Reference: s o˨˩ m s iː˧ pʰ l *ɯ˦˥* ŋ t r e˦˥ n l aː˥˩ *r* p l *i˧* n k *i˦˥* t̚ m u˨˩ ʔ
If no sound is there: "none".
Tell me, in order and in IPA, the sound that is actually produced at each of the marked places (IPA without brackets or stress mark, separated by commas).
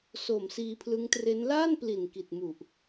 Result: ɯ˦˥, n, i˨˩, i˨˩